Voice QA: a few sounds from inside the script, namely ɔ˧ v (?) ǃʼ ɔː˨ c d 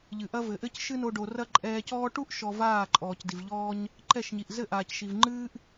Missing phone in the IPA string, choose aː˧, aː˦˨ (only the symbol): aː˦˨